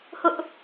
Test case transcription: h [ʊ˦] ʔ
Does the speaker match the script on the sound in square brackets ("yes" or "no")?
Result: yes